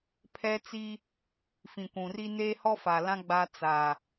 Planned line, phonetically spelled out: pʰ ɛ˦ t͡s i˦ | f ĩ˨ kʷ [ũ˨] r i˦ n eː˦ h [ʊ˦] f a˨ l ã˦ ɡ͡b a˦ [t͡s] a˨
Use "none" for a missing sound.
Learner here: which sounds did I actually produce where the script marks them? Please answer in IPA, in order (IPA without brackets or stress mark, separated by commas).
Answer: ũ˨, ɔ˦, t͡s